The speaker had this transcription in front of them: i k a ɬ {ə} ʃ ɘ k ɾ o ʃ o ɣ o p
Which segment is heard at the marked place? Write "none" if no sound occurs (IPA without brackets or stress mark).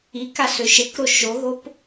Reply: ø